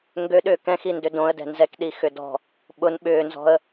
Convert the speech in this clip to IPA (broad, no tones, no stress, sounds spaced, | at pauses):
ŋ ɡ ø ɗ ʏː k ɛ̃ x i n d ø d õ ə̯ d ɛ̤ n z ɛ k ɗ i x ʏ d ɔ̤ | ɓ ʊ n ɓ ʏː n z ɔ̤ ə̯